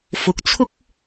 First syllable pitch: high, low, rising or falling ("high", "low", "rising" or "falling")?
rising